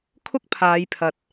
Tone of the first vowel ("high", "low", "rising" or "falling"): high